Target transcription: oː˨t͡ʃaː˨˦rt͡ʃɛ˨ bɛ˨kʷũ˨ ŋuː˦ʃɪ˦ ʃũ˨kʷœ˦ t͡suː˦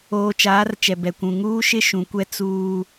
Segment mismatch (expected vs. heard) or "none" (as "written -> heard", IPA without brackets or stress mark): œ˦ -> ɛ˦